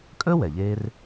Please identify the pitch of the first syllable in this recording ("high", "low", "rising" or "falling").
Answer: high